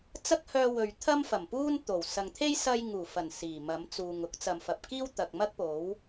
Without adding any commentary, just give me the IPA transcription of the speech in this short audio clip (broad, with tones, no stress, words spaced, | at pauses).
t͡sɐ˥k̚hœː˧ wɵ˨ɥ t̪ʰɐ˥mfɐ˨˩mpuː˥n t̪o˨˩w sɐ˨ŋt̪ʰe˥j sɐ˧j ŋuː˨˩fɐ˨˩n siː˨˩mɐ˨˥mt͡suː˨ŋ ʊ˨˥k̚t͡sɐ˨mfɐ˨p̚ kiː˥wt̪ɐ˨k̚mɐ˥k̚po˨˥w